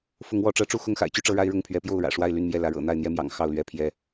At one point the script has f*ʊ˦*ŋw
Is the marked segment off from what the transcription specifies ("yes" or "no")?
yes